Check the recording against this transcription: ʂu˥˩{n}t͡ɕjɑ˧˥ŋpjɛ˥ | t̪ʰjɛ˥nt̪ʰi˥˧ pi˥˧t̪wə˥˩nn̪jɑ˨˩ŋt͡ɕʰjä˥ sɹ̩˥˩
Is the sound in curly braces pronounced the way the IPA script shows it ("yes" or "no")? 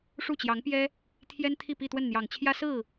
no